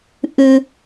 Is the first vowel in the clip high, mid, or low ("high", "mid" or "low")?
high